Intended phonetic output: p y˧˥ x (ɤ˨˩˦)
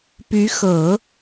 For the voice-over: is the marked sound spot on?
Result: yes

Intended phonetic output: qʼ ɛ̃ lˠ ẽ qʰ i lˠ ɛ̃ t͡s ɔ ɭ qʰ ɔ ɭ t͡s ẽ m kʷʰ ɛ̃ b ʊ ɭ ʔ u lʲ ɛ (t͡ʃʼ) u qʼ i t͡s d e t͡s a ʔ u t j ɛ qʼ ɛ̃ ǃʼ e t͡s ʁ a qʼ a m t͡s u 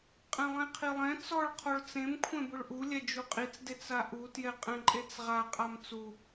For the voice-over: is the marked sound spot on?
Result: no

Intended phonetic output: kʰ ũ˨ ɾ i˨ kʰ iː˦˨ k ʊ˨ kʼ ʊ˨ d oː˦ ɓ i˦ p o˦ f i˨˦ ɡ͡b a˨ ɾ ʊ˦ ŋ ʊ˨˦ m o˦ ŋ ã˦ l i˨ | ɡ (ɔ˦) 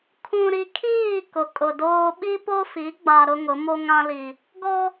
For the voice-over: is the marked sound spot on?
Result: yes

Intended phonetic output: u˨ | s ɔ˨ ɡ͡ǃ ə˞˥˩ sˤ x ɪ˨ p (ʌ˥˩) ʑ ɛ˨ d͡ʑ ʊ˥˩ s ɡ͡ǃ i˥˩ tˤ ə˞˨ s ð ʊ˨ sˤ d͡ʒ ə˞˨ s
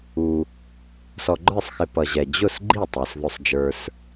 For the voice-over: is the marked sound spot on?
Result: no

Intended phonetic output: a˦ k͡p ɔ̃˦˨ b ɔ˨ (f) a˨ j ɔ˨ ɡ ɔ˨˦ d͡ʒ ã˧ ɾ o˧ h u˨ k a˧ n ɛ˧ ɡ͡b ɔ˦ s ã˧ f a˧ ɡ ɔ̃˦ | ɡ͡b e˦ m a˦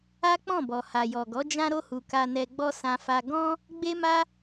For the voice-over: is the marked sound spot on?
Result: no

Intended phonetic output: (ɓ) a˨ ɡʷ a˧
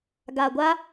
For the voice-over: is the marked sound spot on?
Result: no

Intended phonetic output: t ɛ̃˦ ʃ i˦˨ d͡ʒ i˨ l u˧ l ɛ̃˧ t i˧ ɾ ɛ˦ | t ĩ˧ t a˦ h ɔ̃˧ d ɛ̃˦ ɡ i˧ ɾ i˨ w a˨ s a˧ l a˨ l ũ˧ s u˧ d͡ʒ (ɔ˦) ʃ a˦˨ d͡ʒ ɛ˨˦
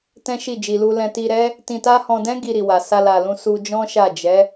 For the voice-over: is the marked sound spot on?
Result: no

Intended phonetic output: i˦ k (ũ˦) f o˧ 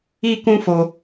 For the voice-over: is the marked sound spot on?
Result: yes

